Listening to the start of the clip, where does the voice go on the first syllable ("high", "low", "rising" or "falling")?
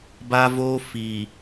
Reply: high